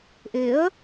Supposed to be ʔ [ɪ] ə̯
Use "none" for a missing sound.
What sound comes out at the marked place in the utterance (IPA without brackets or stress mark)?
ɪ